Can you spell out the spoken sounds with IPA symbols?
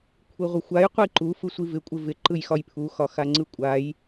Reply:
kʷʰiʁʷɪxʷaj qʷiǃu fɯsʷivɪ kʷʼɪvɪ ǃɯjxɒjpʰu xɒxaŋ͡ǀɯkʷʼaj

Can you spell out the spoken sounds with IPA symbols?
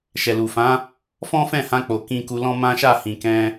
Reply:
ʃɛ˨lu˨fã˨˦ | fɔ̃˦ fɛ̃˦˨hã˧k͡po˨ kĩ˧ku˧lɔ̃˦ mã˦ʃa˦˨hĩ˨ kɛ̃˧

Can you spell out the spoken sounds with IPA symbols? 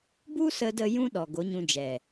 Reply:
bu˦sə˧də˧ jũ˦ɗɔ˨ ɡo˨˦ɲũ˧ d͡ʒɛ˨

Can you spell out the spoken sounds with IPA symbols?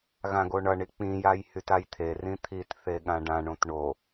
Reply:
ɣãɡoɳʌɳi k͡pĩjaj hytajt̪ʰerĩ t̪ʰit θeɠãɖãɳõt ɳo

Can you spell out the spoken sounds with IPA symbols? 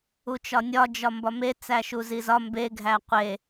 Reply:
ut͡ʃɒnʲɒ d͡ʒɒmbɒme t͡sæʃuzizɒ mbe ɡʱæqʷe

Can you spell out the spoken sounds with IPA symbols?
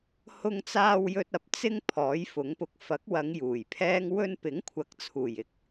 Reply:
hʊ˧ŋt͡saː˧w jɵ˧t̚ɐ˨p̚ t͡sɪ˧ŋ pʰɔː˨˥jfʊ˨˥ŋpʊ˨k̚ fɐ˨˥k̚wɐ˨˧ŋ juː˨˩jpʰɛː˥ŋ wɵ˧npɪ˨˥ŋkʷʰɐ˨˥k̚t͡sʰuː˨˩j ɪ˧k̚

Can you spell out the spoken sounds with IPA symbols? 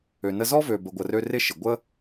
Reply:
ø˨nə˧zɔ˦vø˨ bə˨ɡʷə˨rø˧ rɪ˦ ʃɪ˨ɡʷə˦

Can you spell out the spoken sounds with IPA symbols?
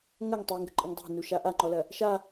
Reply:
ŋɐŋ tˤiŋɡə̤ǃʼəŋ dˤɛ̤nuʃa ʔaŋ͡ǃɔlɐ | ʃa

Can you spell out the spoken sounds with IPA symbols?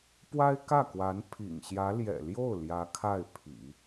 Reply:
pwa˥ɪ̯kä˥˩kwa˧˥n pʰḭ˨˩ŋɕjä˧˥ ljɛ̰˨˩ljo˥˩ʊ̯ ljä˧˥kʰa˥˩ɪ̯pʰḭ˨˩˦

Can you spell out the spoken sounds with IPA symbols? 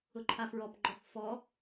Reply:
ʊǃʰafɹɔpɡ͡ǃɔx fɔ

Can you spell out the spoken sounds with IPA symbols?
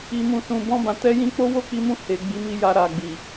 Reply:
i˨ mũ˨sũ˨bɔ̃˧ bã˨tɛ˨˦jĩ˧k͡po˦ wo˦˨k͡pi˧mũ˧ he˨ ɡ͡bi˨˦mi˧ja˧ ɾa˨ɡ͡bi˨

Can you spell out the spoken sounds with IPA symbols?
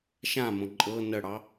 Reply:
ʃãmõ ǃʼɤ n̪əɽɑ

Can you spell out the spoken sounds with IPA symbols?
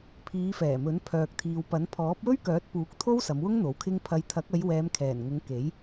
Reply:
pʰiː˨˧fɛː˨˩mɵ˨˥n pʰœː˨k̚t̪ʰiː˨wpɐ˨˥n pʰɔː˨˥p̚wɵ˥ɥkœː˨˥t̚puː˨˥k̚ t̪ʰo˥wsɐ˨˧mwʊ˥ŋn̪o˨˥w kʰɪ˧ŋpʰɐ˨˧jt̪ʰɐ˨˥k̚ɐ˨˧j wɛː˨˧mkʰɛː˨˩nŋʊ˨˧ŋ ke˨˥j

